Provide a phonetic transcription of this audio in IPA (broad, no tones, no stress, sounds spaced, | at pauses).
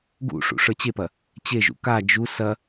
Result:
ɡ ṵ ʂ ṵ ʂ ə˞ t͡ɕ e p ɐ | t͡ɕ e ʒ ṵ k a d͡ʒ u s ɐ